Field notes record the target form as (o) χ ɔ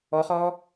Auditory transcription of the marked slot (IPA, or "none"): ɔ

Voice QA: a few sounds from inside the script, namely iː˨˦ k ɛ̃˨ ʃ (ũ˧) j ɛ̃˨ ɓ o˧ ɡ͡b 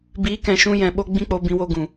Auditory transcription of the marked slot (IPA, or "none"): ũ˧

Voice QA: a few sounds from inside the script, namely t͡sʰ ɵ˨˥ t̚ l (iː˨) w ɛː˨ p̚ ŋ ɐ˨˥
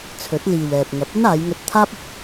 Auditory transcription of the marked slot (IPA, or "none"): iː˨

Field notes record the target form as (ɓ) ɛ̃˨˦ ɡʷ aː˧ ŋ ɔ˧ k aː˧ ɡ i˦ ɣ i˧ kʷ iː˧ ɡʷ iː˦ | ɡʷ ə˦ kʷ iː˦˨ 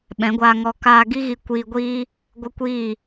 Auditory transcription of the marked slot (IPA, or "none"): ɓ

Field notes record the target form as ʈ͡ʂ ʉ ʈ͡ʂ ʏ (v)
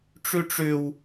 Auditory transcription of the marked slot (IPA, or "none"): w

